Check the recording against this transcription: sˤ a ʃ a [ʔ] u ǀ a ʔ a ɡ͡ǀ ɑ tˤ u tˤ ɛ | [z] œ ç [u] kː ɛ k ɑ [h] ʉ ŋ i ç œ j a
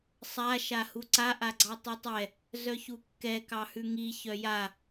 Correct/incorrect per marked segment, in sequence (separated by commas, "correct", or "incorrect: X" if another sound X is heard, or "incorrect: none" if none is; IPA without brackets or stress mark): incorrect: h, correct, correct, correct